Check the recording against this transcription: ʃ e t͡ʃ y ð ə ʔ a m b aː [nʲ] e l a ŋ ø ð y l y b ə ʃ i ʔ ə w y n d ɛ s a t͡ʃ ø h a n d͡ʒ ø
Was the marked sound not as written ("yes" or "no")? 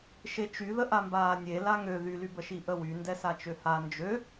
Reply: no